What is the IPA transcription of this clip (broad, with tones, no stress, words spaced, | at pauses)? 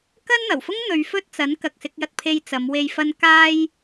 kɐ˥nn̪ɐ˨˩wfʊ˥ŋn̪ɵ˨˧ɥ fɵ˥t̚t͡sɐ˨˥n kɐ˨k̚sɪ˧k̚jɐ˧t̚pʰe˧j t͡sɐ˨˧mwe˧j fɐ˧n kaː˧j